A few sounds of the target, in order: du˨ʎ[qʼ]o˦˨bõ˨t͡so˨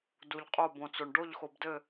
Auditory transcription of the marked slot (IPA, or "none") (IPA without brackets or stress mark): qʼ